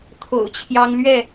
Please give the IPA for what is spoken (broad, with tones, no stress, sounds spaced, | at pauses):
t̪ʰ o̰˨˩ ʊ̯ t͡ɕʰ j ɑ˦ ŋ l ɥ ɛ˥˨